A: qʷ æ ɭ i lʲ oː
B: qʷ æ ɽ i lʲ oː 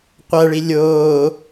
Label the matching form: A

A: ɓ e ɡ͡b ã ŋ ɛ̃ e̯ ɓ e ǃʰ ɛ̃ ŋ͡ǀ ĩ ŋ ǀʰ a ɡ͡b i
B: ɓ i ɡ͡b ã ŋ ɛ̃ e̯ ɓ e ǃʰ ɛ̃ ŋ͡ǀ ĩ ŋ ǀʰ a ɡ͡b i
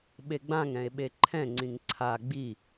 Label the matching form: A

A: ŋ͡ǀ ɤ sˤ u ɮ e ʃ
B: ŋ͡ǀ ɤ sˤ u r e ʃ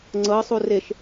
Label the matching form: B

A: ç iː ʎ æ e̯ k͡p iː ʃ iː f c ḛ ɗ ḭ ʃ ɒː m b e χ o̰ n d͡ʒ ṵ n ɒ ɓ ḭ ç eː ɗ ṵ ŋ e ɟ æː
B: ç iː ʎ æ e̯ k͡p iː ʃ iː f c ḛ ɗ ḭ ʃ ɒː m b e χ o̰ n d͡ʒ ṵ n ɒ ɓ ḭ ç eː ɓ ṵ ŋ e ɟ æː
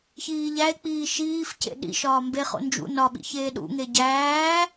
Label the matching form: A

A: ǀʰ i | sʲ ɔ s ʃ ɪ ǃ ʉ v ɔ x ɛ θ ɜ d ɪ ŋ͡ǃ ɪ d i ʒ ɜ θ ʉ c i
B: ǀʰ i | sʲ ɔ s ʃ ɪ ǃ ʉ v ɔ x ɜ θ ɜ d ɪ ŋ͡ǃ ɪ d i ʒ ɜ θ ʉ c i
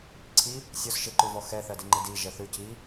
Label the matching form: A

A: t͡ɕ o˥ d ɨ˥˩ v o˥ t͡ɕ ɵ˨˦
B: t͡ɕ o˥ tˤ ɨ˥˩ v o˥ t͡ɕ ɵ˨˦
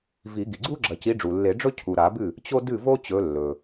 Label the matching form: A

